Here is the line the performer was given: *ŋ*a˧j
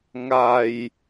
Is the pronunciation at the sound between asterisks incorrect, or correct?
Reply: correct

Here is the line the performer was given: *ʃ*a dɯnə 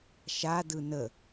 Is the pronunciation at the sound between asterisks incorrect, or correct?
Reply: correct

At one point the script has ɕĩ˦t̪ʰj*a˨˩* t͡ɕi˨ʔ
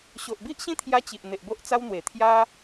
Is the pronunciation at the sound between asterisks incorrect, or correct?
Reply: incorrect: a˧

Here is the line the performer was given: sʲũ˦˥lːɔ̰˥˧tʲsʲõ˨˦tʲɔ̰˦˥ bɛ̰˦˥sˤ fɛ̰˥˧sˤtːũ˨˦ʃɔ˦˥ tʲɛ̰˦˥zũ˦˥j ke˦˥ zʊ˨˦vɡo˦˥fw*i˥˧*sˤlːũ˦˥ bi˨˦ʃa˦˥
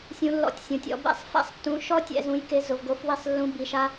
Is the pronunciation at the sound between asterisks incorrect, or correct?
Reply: correct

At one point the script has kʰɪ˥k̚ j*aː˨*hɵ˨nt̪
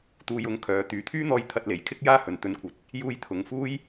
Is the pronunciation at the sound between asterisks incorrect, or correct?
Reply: incorrect: aː˥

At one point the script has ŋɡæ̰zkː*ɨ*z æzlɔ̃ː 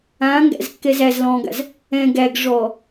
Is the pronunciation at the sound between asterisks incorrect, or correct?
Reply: incorrect: ɛ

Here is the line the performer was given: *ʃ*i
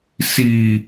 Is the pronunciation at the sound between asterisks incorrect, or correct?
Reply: incorrect: s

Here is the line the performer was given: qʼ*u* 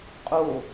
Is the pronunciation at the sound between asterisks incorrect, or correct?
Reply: incorrect: o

